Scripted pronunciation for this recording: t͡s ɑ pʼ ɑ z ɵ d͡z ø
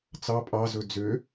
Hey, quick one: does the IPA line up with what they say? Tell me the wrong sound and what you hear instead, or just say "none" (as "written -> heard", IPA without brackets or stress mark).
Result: none